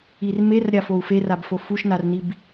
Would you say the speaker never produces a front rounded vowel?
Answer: yes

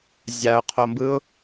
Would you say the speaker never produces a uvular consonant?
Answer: no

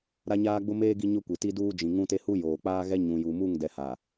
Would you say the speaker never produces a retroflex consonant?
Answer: yes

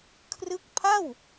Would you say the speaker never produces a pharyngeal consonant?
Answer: yes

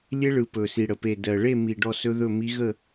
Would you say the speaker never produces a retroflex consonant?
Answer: no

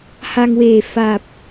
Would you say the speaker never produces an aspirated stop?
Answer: yes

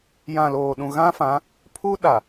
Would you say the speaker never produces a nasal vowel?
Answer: no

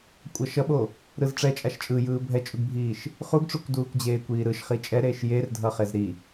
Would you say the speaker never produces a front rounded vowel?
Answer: yes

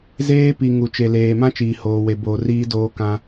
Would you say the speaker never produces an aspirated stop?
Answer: yes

